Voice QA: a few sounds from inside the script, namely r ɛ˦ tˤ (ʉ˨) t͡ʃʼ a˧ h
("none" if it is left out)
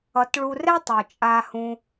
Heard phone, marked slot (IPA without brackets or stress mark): u˨